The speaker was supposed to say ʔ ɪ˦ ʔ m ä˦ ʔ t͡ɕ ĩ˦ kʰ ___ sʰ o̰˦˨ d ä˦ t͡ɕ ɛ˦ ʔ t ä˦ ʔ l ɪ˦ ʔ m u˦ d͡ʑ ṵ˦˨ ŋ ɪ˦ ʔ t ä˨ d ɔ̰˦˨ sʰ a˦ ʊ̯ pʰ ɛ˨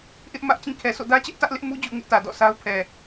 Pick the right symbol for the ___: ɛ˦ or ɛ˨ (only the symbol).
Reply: ɛ˨